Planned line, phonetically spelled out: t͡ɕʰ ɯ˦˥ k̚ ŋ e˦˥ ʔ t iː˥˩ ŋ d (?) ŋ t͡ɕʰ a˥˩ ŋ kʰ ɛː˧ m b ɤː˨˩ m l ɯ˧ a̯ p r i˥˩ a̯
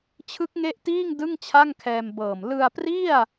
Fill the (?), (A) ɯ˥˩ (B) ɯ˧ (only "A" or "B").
A